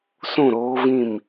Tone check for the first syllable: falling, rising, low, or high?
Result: falling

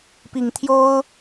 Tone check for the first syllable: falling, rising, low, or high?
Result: low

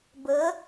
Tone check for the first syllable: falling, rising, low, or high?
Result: rising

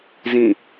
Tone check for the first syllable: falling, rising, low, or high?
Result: falling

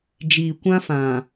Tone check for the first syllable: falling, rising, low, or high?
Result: low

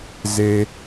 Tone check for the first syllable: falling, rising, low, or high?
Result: high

